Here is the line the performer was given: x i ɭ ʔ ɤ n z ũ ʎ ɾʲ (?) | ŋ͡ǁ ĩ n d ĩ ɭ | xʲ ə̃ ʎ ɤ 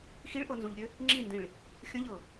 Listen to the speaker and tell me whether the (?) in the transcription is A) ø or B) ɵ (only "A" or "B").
A